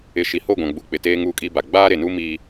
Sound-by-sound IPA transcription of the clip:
ɪ˨ ʃ i˨ h o˦˨ ɡʷ ã˨ ɡ͡b u˨ k͡p ɪ˨ t eː˦ ŋ u˦˨ kʼ i˦ b a˨ ɡ͡b aː˦ ɾ e˨ n u˦ m iː˦

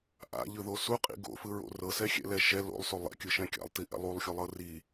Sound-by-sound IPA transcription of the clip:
ʔ a̰ ʎ ɯ ð o s u qʼ ḭ ɡ o̰ f ɯ ɹ o̰ r ɤ s ɛ xʲ ɛ̰ l ɛ ʃ ɛ l o̰ lˠ s o lˠ ɛ̰ kʲ ɯ ʃ ɛ̃ kʲ a̰ lˠ t i ʔ ɛ̰ lˠ u lˠ xʲ u lˠ ɤ r i

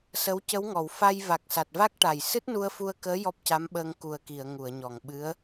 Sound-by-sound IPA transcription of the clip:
s ə˧˥ w c ə˧˥ w ŋ ɔ˨˩˨ w f a˧ j v a˨˩ k̚ s a˨˩ t̚ v a˦˥ k̚ ʈ a˨˩ j s ɨ˦˥ t̚ n u˧ ə̯ f u˧ ə̯ k əː˧˥ j ɔ˦˥ p̚ c a˧˥ m ɓ əː˧ ŋ k u˨˩ ə̯ k i˨˩˨ ə̯ ŋ u˨˩˨ ə̯ ɲ ɔ˨˩ ŋ ɓ ɨ˧˥ ə̯

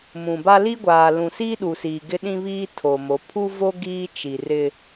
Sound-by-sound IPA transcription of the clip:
m ũ˨ b a˦ l i˦ ɡʷ aː˨ l ũ˨ s iː˦ ɗ u˨ s iː˨ ɡ ɪ˦ ɗ ĩ˦ β iː˦ tʰ o˨ m o˨˦ pʰ u˦ v o˦ ɡ iː˦ t͡ʃ i˨ r ɪ˦

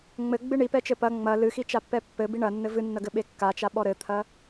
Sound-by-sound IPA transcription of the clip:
ŋ͡m ɘ ɡ͡b ɨ ɳ i p ɛ t͡ʃ ɘ p ɐ ŋ͡m ɐ l ɨ x i t͡ʃ a pː ɛ pː ɘ b i ɳ ɐ nː ɘ v ɨ nː ɐ ɡ ɘ ɓ e kː a t͡ʃ a ɓ ɔ ɾ ɘ t̪ʰ ɐ

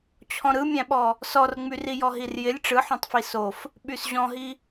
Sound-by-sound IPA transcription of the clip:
t͡ɕʰ ɔ̃ ɾ ɯ mʲ æ̃ ɓ ɔ | s ɔ r ŋ͡m y r i j ɔ ɦ i r j ɪ lʲ ʈ͡ʂ ɯ ħ õ tˤ f i s o f | ɓ y s ʑ ɔ̃ ɦ i

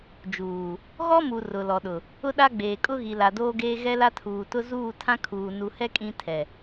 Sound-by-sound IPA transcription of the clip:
d͡ʒ uː˨ | ɣ ɔ˦ m u˨ r ʊ˨ l ɔ˨ ɗ ʊ˨ | ʊ˦ ɗ a˦ ɡ͡b eː˨ kʼ ʊ˦ ɣ i˨ l a˨ d oː˦ ɡ eː˦ ɣ ɛ˦ l a˦ tʰ uː˨ t ʊ˦ z uː˦˨ tʰ ã˦ kʰ uː˨ n u˨ h ɛ˦ kʼ ĩ˦ tʰ ɛ˨

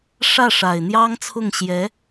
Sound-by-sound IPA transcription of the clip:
ʂ ä˥˩ ʂ a˨˩ ɪ̯ n̪ j ɑ˥ ŋ t͡sʰ ʊ˥˩ ŋ ɕ j ɛ˧˥

